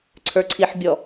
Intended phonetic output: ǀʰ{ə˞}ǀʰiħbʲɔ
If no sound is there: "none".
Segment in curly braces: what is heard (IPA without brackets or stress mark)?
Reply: ə˞